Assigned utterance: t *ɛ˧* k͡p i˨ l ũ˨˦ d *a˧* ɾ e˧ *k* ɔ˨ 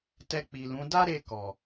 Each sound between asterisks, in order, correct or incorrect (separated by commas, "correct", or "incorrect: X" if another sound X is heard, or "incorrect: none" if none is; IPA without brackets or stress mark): correct, incorrect: a˦, correct